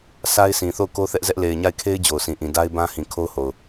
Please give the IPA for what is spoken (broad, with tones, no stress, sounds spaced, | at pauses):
sʰ a˦ ɪ̯ sʰ ĩ˨ θ o˦˨ ʊ̯ k o˦ θ ɛ˦ ʔ z ɛ˦ ʔ l e˨ ɪ̯ ɲ a˦˨ ɪ̯ kʰ e˦ ɪ̯ d͡ʑ o˨ ʊ̯ sʰ ĩ˨ ʔ ĩ˨ d a˦ ɪ̯ b ã˦ h ĩ˨ kʰ o˦ ʊ̯ h o˨ ʊ̯